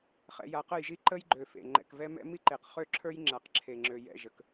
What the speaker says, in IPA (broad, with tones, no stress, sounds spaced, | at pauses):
χ ɛ̰˨ j a˨ q ə˦˨ j ʒ i˦ ǃ ə˦ j ɡ͡ǃ ø˨ f ḛ˨ ŋ͡ǃ ɛ̰˨ k v ɛ˦ m ɛ̰˦ m i˦ ǃ e˨ q χ ø˦ ǁʰ ə˞˦ j ŋ͡ǁ a˨ q ǁʰ e˨ ŋ͡ǁ ø˨ j ɛ̰˦˨ ʒ ə˨ k